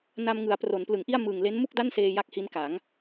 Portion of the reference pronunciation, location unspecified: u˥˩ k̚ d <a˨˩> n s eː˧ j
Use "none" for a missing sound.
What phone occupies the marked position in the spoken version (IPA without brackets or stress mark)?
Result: a˥˩